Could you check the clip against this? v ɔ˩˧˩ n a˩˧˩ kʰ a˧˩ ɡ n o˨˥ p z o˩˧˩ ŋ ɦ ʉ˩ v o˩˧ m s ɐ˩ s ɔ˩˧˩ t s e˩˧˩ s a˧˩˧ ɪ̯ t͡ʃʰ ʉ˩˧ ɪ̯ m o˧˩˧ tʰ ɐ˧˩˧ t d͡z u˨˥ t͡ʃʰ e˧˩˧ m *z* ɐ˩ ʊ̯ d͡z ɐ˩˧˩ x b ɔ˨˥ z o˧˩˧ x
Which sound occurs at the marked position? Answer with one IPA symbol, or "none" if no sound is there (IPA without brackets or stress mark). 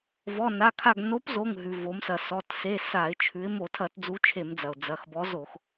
d͡z